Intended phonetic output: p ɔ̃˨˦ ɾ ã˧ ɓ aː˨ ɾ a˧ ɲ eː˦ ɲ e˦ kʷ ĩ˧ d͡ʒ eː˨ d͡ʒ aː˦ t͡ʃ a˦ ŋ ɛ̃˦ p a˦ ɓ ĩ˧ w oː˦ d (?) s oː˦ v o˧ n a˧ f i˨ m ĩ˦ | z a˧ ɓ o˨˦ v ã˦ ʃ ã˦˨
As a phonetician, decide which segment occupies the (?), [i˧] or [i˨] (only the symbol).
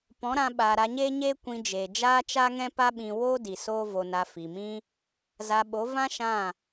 i˨